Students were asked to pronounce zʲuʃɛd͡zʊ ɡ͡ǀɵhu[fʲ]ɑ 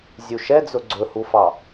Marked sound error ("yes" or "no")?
yes